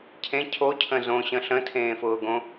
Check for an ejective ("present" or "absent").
absent